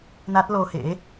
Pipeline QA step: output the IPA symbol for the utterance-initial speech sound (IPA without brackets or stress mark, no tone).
n